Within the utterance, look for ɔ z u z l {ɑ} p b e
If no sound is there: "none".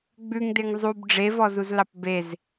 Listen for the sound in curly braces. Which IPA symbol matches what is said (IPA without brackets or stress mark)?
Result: ɑ